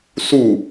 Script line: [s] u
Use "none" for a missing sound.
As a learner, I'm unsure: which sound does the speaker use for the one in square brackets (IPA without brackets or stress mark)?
s